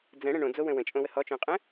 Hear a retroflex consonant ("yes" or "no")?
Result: yes